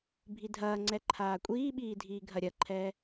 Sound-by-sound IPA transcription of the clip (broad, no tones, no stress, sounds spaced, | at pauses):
bʱ i dʱ ɐː ŋ͡ǀ ɛ ǃʰ aː kʷʼ iː ɓ iː dʱ iː ɡʱ ɐ ɾʲ ɐ ǃʰ ɛː